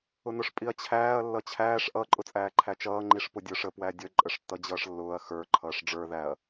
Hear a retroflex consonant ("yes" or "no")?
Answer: yes